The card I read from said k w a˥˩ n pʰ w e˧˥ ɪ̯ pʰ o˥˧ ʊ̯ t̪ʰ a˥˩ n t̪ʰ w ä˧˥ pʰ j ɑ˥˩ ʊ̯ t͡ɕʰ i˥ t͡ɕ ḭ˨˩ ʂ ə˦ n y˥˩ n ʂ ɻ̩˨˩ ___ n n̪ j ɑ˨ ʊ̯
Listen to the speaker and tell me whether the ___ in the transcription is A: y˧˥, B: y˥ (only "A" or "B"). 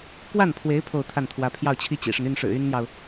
B